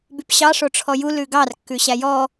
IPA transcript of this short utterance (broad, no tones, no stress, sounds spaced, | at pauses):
b y p ɕ ɑ ʂ o ʈ͡ʂʰ ɔ j u l ʉ ɡ ɑ r kː ʉ ɕ æ j ɔ